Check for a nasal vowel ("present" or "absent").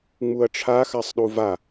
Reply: absent